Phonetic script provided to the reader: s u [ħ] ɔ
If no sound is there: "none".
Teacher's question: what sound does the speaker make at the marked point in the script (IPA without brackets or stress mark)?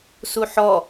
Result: ħ